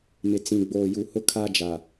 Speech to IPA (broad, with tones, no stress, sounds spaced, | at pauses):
m ɪ˨ t͡s ĩ˨ ɡ͡b oː˨ j u˨ h ʊ˦ kʰ a˦ d͡ʒ a˨